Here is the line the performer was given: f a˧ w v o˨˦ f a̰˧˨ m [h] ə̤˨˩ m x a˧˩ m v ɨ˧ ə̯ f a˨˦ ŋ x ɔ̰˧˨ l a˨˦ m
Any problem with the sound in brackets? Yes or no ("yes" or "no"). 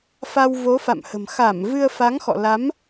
no